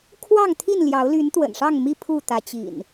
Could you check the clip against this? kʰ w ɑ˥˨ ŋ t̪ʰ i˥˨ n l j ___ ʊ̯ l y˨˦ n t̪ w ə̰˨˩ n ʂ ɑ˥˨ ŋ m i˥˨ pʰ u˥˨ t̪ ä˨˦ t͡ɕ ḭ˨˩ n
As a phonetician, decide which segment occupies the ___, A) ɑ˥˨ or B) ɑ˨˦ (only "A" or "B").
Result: B